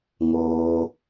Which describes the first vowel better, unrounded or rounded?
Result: rounded